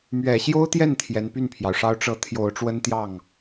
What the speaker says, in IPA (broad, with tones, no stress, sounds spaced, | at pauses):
m ɥ ɛ˨˩ ɕ j o˥ ʊ̯ t̪ j ɛ˥˩ n t̪ʰ j ɛ˧˥ n p y˥˩ n pʰ j ɑ˩ ʊ̯ ʂ ɑ˥ ʊ̯ ʈ͡ʂ ɤ˧˥ t̪ʰ j o˨˩ ʊ̯ ʈ͡ʂ w ə˥ n t̪ j ɑ˥˩ ŋ